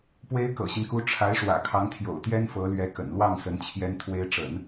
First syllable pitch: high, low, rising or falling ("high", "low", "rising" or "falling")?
rising